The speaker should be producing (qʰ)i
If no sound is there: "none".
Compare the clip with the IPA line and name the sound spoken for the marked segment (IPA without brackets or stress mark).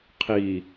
qʰ